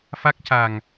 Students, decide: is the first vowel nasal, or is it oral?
oral